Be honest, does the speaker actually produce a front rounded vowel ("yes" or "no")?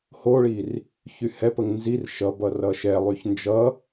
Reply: yes